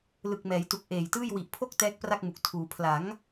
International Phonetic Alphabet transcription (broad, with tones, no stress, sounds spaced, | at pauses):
l ɯ˨˩ k̚ m ɛː˩˦ j t u˨˩ k̚ ʔ eː˨˩ j t ɯː˥˩ j w i˨˩ ʔ pʰ o˥˩ k̚ t ɛː˦˥ k̚ p r a˥˩ k̚ m u˨˩ k̚ tʰ uː˩˦ pʰ l a˩˦ ŋ